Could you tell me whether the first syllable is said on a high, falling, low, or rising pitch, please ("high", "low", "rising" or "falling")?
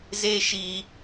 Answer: high